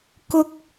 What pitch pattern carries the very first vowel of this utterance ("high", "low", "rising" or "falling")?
high